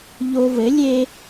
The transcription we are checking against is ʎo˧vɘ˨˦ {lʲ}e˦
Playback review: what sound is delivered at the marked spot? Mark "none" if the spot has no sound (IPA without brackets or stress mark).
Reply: lʲ